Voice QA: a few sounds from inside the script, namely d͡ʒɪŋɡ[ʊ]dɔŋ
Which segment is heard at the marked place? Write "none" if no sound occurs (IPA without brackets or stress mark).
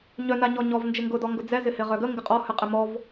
ʊ